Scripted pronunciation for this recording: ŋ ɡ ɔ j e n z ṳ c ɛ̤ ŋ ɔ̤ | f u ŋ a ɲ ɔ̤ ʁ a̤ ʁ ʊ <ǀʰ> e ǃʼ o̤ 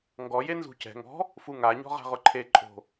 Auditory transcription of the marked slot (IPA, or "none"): ǃʰ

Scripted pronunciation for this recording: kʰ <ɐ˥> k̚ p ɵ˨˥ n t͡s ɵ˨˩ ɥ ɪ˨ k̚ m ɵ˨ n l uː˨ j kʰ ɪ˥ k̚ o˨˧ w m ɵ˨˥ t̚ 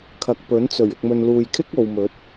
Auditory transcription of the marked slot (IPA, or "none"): ɐ˨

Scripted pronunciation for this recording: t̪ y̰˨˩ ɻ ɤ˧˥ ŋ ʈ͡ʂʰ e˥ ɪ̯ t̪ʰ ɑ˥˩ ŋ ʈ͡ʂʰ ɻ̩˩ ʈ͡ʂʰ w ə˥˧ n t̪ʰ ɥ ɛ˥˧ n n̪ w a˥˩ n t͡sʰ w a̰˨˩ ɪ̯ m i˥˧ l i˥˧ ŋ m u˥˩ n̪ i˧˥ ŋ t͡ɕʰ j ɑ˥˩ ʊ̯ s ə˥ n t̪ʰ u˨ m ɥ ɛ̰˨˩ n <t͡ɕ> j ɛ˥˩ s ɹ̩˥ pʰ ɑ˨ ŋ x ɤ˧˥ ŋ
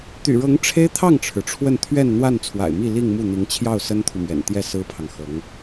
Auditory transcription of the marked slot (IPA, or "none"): t̪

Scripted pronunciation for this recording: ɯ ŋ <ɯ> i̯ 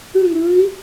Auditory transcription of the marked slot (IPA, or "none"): ɯː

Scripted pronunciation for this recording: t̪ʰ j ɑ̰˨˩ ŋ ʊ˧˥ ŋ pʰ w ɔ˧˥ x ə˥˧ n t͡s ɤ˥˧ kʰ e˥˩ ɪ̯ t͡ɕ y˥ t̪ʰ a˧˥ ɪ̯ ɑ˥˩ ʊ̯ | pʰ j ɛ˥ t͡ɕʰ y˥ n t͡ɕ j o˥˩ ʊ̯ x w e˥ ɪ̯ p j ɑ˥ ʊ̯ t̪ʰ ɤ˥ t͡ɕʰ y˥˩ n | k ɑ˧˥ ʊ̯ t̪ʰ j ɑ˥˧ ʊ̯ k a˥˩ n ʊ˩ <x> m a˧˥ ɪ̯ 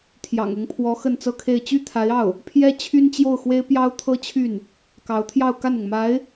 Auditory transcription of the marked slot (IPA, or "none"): ŋ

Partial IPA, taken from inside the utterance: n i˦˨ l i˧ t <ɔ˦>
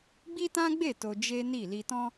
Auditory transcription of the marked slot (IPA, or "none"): ɔ̃˦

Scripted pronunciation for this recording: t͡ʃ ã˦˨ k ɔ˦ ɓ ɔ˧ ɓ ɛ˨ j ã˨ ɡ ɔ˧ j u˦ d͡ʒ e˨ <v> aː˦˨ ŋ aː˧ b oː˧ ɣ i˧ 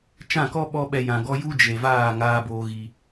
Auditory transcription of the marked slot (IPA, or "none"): v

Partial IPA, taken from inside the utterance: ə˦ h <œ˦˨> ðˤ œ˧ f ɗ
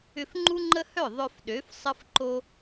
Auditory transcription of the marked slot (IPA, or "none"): œ˦˨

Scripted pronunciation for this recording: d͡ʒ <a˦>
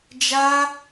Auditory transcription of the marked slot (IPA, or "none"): a˦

